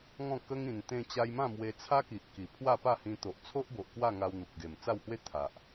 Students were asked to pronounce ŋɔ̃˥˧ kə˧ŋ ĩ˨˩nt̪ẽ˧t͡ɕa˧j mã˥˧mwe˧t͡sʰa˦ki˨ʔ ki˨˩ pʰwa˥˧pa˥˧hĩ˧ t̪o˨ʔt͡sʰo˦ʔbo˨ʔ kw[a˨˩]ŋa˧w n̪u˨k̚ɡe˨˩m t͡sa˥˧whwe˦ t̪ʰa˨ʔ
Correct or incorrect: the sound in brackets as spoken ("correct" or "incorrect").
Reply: incorrect